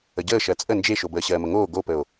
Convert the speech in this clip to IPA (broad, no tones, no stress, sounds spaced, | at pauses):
ə ɟ əː ʃ ɜ t͡sʼ ə n d͡ʒ e ʃ o b əː ɕ ɜː m ə ŋ oː ɡ o p ə o̯